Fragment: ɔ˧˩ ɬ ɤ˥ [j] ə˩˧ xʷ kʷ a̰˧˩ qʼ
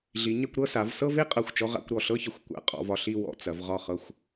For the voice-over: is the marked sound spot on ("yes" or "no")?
no